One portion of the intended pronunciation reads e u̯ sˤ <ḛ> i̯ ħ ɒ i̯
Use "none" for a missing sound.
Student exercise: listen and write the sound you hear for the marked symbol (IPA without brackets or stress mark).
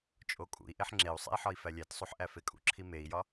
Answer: ḛ